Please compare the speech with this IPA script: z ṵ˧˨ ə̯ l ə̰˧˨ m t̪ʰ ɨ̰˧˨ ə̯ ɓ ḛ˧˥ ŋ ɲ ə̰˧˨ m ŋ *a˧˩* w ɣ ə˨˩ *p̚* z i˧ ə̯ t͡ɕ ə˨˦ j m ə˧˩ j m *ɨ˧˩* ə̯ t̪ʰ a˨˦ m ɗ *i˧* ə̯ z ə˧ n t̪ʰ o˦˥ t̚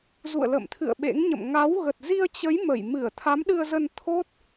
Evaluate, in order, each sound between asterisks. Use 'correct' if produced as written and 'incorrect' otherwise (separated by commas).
incorrect, incorrect, correct, incorrect